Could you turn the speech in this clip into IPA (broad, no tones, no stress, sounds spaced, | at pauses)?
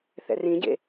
θ ɛ̰ r ĩ ɟ ḛ